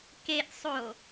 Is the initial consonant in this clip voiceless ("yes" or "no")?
yes